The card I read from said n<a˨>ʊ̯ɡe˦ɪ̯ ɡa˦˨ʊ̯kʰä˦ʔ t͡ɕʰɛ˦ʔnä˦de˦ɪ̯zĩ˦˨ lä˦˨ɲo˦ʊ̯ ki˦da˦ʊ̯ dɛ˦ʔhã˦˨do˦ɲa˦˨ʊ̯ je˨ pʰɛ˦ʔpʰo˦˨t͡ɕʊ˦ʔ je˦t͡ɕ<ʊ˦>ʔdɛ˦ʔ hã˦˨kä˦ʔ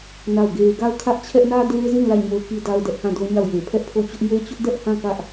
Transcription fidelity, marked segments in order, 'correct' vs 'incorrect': incorrect: a˦˨, correct

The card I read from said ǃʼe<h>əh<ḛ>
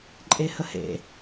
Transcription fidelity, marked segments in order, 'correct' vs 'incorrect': correct, correct

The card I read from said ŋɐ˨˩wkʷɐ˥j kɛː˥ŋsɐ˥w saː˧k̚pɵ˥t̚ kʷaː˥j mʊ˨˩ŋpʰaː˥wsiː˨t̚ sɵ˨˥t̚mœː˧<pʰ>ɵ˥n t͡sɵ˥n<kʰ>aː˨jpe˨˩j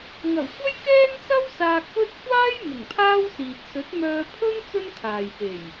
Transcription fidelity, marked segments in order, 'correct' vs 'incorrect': correct, correct

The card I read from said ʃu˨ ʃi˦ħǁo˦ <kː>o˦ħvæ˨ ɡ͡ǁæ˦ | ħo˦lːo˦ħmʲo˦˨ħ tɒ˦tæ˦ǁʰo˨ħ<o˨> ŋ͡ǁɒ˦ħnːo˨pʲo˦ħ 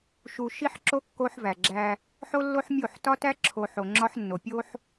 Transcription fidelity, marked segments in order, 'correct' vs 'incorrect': correct, correct

